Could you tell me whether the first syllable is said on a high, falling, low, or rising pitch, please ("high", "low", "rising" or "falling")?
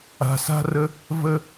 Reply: low